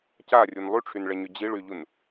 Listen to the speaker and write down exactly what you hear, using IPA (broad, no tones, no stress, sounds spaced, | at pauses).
c a rʲ u n lˠ y ʈ͡ʂʰ y n ɭ ɛ ɲ y d͡ʑ i ɭ y ʎ u n